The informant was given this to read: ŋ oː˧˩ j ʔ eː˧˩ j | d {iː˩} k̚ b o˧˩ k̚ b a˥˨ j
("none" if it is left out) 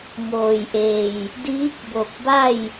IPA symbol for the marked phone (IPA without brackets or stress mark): iː˧˥